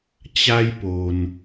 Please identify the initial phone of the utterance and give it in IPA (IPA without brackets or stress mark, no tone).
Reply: t͡ɕ